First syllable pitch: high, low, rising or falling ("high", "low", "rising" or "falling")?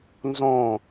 falling